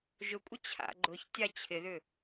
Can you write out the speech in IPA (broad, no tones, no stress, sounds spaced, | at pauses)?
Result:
ʒ ʊ kʷʼ ə t͡ɕʰ a̰ ɡ͡ǃ ʊ ç tʲ a t͡ɕʰ ɪ ð ʏ